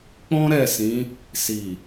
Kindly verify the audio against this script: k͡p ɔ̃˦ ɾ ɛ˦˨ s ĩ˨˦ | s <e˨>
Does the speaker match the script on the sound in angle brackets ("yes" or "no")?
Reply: no